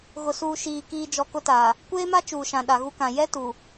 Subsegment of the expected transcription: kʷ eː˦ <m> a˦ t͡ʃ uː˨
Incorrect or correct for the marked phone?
correct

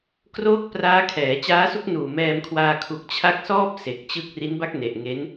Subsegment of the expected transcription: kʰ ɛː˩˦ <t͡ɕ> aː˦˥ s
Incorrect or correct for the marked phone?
correct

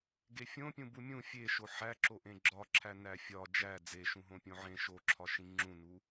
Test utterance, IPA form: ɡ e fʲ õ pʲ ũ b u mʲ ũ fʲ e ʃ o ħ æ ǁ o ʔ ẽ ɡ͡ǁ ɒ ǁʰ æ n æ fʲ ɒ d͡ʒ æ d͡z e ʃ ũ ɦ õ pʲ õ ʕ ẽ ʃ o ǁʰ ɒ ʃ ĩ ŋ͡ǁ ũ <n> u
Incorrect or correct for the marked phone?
correct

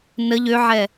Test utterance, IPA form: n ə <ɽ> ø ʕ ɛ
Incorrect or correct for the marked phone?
incorrect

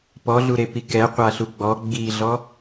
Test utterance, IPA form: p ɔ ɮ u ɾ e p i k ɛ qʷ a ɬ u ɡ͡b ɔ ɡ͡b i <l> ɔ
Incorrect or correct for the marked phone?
incorrect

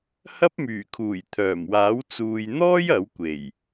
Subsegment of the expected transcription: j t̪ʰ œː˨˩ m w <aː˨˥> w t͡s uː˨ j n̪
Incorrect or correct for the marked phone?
correct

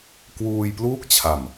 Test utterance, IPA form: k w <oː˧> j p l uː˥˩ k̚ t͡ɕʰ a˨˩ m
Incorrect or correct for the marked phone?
incorrect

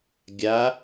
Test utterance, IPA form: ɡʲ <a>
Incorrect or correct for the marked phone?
correct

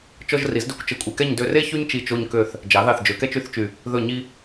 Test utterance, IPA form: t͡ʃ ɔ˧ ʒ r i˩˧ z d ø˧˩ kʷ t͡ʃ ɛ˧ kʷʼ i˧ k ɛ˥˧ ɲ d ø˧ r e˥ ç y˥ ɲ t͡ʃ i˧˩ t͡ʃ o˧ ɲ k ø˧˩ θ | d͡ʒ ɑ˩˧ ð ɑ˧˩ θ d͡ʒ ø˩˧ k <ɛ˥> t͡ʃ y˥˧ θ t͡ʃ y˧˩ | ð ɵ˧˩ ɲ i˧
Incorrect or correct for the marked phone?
correct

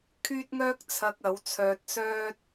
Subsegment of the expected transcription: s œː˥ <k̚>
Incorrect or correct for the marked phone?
incorrect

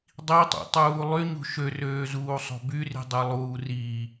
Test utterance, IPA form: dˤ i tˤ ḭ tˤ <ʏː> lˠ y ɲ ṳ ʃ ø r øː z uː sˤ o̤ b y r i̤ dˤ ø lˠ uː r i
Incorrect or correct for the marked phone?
incorrect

